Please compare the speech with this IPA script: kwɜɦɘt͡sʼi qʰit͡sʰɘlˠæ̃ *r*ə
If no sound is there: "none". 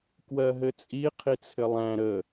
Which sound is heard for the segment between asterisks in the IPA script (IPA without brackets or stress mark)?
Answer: ɾ